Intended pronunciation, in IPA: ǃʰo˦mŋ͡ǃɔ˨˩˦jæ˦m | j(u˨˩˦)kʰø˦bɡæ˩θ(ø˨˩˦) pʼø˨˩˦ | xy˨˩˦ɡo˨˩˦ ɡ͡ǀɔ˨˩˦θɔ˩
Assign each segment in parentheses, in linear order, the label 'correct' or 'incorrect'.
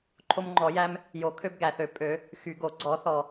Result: incorrect: o˨˩˦, correct

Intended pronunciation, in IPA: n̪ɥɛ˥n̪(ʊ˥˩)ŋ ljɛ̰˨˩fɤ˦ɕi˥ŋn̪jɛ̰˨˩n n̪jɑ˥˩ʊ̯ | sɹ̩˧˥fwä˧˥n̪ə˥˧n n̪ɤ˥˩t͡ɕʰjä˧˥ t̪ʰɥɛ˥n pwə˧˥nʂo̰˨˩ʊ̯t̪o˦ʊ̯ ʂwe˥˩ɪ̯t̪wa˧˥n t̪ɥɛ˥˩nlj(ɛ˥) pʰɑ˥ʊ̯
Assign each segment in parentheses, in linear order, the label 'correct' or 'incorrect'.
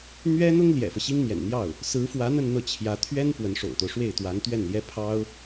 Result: incorrect: ʊ˥, correct

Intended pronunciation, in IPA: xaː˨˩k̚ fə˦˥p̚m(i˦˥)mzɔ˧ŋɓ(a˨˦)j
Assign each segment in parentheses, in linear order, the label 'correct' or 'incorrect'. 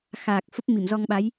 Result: incorrect: i˧˩, correct

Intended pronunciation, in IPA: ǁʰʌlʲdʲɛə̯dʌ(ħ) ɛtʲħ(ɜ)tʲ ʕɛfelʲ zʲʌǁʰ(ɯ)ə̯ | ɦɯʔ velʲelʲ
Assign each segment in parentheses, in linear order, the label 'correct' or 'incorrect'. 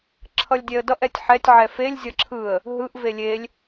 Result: incorrect: ʔ, incorrect: ɛ, correct

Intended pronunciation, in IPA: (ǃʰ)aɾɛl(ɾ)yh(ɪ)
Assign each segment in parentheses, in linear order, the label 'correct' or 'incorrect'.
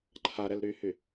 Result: correct, correct, incorrect: y

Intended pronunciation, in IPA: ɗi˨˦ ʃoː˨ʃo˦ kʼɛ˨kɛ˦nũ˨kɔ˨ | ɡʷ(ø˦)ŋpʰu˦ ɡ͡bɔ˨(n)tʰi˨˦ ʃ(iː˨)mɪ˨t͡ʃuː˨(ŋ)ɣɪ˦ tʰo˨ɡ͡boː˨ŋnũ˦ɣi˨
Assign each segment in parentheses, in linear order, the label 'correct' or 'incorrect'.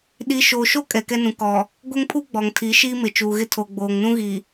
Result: incorrect: ɛ˦, incorrect: ŋ, incorrect: iː˦, incorrect: none

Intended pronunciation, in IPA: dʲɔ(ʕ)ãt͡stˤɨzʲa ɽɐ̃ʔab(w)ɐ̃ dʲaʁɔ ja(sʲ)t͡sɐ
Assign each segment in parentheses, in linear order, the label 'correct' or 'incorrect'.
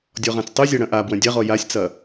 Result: incorrect: ʁ, correct, correct

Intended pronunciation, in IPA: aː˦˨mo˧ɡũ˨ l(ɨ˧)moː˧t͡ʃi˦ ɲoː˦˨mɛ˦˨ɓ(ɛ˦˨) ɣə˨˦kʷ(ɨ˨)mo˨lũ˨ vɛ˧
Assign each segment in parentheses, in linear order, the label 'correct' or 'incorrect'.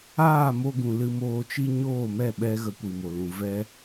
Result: correct, incorrect: ɛ˧, incorrect: i˨

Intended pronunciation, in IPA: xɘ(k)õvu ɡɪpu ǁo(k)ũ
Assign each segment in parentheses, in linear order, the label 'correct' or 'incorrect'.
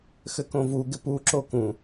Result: correct, correct

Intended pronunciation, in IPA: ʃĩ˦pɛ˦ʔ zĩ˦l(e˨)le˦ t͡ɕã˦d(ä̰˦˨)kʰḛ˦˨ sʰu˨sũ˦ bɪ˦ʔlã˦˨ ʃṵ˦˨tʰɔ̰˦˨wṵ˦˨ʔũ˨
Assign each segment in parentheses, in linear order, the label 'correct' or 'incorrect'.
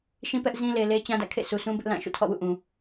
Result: correct, correct

